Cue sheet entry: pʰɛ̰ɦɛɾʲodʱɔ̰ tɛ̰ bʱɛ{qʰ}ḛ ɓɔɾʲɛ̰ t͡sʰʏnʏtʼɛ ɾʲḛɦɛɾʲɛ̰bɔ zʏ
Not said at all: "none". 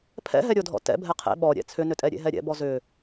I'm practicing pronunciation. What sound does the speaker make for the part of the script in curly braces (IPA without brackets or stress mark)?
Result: qʰ